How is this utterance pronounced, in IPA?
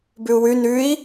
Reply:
b ʉ u̯ w ʉ n ʉ i̯

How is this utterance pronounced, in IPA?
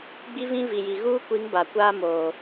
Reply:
ɡ͡b i˦ v ĩ˦ v i˨ j i˨ ɣ uː˦ kʷ i˨˦ ŋ b a˨ kʷ aː˦ m oː˨

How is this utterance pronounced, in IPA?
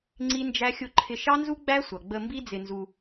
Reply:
ŋ͡ǀ i˦ n d͡ʒ æ˦ xʲ ʊ˦ ǃʰ ɪ˧ ʃ ɑ˦ n z u˦ ɡ͡b æ˦ sʷ ʌ˨ ɡ͡b ə˧ m b i˦ d͡z ɪ˧ n z u˧

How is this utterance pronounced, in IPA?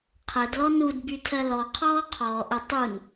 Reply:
qʰ ɛ d l ɔ n u d b y tʰ ɜ l ɔ qʰ ɔː qʰ ɔː ʔ ə tˤ u n

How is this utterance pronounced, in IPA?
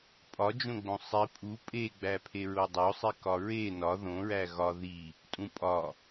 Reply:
pʼ ɒ d͡ʒ õ ɡ͡b õ sˤ i pʼ u pʼ e ɡ͡b æ pʰ e ɹ o dˤ o sˤ i k ɒ ɹ e n ɒ ð õ ɹ æ ɣ ɒ ð i | tʼ ũ pʼ ɒ

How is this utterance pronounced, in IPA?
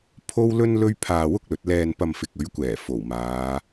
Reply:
pʰ o˥ w l ɵ˥ n l ɵ˥ ɥ pʰ aː˧ w ʊ˥ k̚ l ɵ˨˥ t̚ l ɛː˧ n p ɐ˧ m f ɪ˨ k̚ ɵ˨˥ ɥ kʷ ɛː˨˩ f o˨˩ w m aː˨˧

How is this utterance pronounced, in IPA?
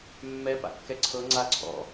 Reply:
mː ɛ p a̰ kː ɛ ǀʰ ɤ ŋ͡ǀ a ǀʰ ɔ̰

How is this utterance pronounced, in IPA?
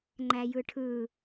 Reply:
ŋ͡ǃ æ j ɯ ʈʰ ɯ

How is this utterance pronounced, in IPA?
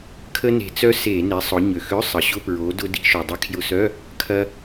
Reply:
kʰ ə˧ n e̤˩ t͡s œ˧ s e˧˩˧ n e˩˧ sˤ ʊ˩˧ ɲ ø˩ x ø˧˥˧ sˤ ə˩ ɕ ʊ˧˥˧ p ɹ o˩˧ d ʊ˧ d i̤˧ ʃ o˩ dˤ ɪ˧ kʰ j ʊ˧˩˧ s œ˧˥˧ | kʰ ɐ˧

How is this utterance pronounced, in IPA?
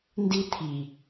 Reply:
n d i t̪ʰ i

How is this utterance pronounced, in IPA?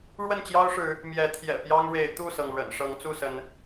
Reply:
ɻ w ə˥˨ n t͡ɕ j ɑ˦ ʊ̯ ʂ ɻ̩˨˦ | m j ɛ˨˦ t̪ʰ j ɛ̰˨˩ p j ɑ˦ ŋ ɻ e˨˦ ɪ̯ t̪ u˥˨ s ɤ˩ ŋ ɻ ə̰˨˩ n ʂ ɤ˨˦ ŋ t͡s u˥˨ s ə˨˦ n

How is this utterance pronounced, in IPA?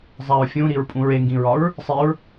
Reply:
zˤ æ ɹ fʲ ũ ɾ i ɹ pʼ ũ ɹ e ŋ ɡ ĩ ɹ ɒ ɹ | sˤ i ɹ

